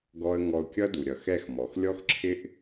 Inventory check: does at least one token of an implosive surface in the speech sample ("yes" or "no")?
no